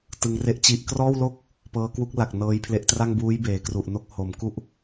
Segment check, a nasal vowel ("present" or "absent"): absent